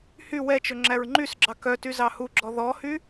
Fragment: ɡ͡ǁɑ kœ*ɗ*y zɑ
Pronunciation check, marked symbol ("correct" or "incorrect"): incorrect